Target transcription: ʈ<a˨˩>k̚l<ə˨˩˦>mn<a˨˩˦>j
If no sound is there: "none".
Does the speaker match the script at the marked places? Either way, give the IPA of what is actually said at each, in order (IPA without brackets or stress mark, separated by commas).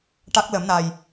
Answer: a˦˥, ə˨˩˦, a˨˩